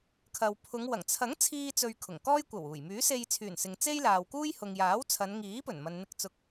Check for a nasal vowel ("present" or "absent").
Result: absent